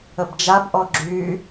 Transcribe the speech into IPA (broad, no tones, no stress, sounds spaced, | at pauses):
ə b d͡ʒ a b ʔ ɔ ɡ͡ǁ y